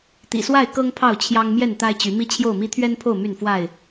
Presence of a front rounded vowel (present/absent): present